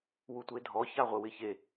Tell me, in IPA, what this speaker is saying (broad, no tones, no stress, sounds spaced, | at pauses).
w u tʷ e dʱ ɔ ç a ʁʷ ɪ w ɪ ç e